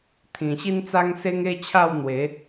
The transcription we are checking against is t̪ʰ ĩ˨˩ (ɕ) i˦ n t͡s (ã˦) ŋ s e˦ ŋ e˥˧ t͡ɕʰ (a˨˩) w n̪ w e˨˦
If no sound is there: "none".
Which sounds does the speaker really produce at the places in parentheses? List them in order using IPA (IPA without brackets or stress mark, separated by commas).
ɕ, a˦, a˥˧